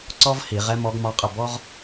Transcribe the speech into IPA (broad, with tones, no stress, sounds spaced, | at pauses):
ǀ ɔ˥ v h i˧˩˧ ʁ ɛ˥ m ɔ˧˥ ɡ m ɒ˧˥ qʼ ə˥˩ b ɔ˥ ʁ